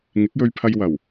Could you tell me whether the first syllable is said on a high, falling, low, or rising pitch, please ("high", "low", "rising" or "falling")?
rising